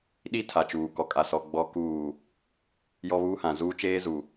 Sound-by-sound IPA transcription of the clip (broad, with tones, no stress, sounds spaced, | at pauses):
ɗ i˦ tʰ a˨ t͡ʃ uː˨ k ɔ˨ kʼ a˨ s ɔ˨ ɡ͡b ɔ˨ k uː˨ | j ɔ˦ β uː˦ h ã˨ z uː˦ t͡ʃ eː˦ z u˨